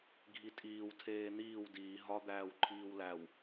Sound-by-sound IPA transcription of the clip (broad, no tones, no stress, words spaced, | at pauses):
ɡʱitʼiːw tʰeːn̪iːw diː ɦɒ d̪æːwǃʰiːwlæw